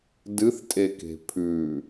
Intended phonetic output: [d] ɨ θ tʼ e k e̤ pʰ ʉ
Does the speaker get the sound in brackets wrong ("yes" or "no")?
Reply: no